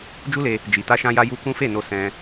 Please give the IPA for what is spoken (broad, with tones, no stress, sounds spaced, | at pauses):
d͡ʒ u˦ l e˧ | d͡ʒ i˨ t a˧ ʃ ã˧ j a˧ j u˧ k ũ˦ f e˦˨ n o˧ s ɛ̃˧